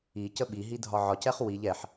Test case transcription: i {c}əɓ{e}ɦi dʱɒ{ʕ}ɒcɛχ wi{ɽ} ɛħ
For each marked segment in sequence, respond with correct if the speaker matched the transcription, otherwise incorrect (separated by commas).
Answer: correct, incorrect, correct, incorrect